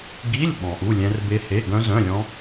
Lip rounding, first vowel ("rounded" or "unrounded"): unrounded